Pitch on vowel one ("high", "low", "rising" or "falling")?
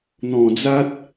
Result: low